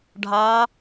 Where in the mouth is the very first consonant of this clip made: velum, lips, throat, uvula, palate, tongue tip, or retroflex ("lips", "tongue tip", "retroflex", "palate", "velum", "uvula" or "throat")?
retroflex